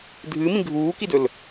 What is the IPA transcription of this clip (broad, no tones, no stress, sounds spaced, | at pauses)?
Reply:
dʱ ɨː m ĩ ɡʱ uː k i d ɵ l